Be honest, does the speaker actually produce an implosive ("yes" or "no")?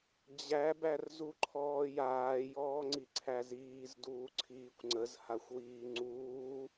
no